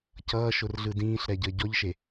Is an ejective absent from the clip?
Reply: yes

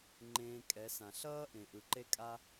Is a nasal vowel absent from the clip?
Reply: no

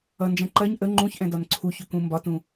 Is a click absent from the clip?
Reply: no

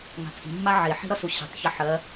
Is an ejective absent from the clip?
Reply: no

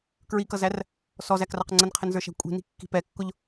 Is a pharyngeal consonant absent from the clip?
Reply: yes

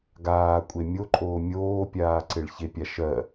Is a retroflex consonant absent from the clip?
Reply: no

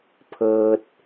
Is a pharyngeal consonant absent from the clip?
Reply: yes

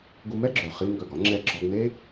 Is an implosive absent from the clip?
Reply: yes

